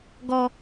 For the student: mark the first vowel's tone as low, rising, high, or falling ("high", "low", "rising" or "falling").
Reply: high